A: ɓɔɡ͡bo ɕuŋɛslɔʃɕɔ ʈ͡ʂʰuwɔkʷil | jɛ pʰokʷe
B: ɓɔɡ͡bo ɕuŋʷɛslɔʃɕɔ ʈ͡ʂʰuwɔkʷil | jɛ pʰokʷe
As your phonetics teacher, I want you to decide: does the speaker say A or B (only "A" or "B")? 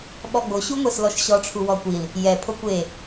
B